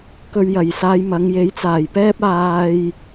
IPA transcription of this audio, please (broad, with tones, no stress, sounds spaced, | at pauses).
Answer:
k ɵ˧ ɥ j ɐ˨ j s aː˧ j m ɐ˨˧ ŋ j e˨˥ j t͡s aː˨˩ j p ɛː˥ p̚ aː˧ j